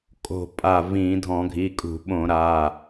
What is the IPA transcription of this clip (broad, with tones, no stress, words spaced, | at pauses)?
kʼo̤˧˩pʼa˧˩ vĩ˧˩˧ dʱɔ̃˧˩˧ɡʱi˩˧˩kʼṳ˧˩˧ɓõ˧˩˧ ɾa˩˧˩